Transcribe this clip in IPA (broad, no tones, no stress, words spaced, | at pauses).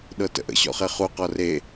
ɗɤtə̰ʔə̰ ɕɔ̰χeχu qɔre